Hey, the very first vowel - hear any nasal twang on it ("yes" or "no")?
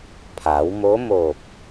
no